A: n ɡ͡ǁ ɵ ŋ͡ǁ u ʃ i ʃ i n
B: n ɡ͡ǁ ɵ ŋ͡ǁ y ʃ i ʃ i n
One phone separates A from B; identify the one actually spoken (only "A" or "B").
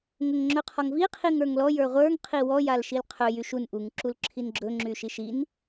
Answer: B